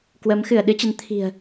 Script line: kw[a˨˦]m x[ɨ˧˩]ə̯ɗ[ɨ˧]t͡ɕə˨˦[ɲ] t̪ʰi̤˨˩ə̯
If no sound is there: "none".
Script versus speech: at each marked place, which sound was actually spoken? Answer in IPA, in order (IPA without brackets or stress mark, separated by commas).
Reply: ə˨˦, ɨ˧˩, ɨ˨˦, n